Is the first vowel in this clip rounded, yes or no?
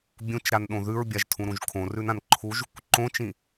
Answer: yes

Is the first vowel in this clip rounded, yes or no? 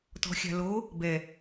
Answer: yes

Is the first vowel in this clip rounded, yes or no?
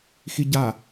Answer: no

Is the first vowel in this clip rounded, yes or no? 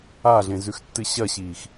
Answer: no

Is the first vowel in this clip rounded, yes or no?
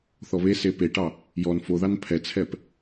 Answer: yes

